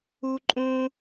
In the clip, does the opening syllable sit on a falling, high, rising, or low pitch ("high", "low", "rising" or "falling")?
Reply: high